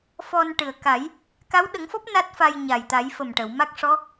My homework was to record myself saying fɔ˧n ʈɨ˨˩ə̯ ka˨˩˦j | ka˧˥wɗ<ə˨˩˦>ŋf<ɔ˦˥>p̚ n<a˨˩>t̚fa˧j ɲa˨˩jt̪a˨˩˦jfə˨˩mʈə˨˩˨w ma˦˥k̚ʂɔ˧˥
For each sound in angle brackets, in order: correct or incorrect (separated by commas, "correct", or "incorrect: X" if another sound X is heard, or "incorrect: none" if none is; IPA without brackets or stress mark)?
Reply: correct, correct, incorrect: a˦˥